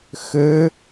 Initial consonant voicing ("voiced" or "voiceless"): voiceless